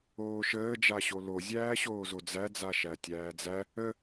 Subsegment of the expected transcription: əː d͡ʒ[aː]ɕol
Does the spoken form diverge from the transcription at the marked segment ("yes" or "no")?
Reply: yes